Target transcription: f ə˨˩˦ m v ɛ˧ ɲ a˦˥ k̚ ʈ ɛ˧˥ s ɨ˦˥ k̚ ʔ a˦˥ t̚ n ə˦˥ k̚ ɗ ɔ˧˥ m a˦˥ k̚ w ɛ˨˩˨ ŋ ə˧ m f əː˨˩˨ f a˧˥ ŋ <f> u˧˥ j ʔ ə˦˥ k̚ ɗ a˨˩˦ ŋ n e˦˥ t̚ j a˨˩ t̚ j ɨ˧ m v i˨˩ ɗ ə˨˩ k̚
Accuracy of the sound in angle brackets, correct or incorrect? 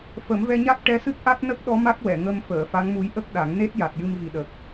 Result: incorrect: m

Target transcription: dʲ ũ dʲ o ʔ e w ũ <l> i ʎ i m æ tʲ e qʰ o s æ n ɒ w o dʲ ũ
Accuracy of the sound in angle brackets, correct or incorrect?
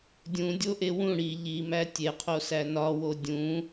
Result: incorrect: ɽ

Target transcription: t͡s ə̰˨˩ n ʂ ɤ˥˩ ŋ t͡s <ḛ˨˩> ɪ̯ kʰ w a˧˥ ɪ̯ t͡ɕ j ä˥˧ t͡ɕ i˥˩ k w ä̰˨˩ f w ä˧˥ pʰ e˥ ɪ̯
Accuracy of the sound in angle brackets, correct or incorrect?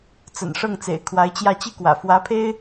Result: correct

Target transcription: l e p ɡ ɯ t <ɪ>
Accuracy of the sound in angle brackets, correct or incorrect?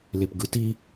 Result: incorrect: i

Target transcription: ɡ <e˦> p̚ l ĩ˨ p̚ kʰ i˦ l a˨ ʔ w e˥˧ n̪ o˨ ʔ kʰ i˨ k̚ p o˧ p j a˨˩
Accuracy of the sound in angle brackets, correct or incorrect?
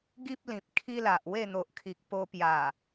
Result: incorrect: i˦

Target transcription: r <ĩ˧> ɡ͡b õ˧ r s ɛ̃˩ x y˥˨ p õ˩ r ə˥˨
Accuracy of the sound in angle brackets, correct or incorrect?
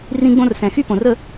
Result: correct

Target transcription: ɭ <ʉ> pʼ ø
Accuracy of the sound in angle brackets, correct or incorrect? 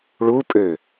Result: incorrect: u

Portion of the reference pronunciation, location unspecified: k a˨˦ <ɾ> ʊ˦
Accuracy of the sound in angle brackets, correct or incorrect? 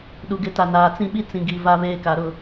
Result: correct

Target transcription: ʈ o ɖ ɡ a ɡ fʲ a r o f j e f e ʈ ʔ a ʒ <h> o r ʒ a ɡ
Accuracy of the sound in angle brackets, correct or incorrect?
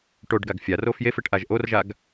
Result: incorrect: ʔ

